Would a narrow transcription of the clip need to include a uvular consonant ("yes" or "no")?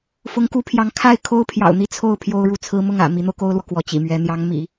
no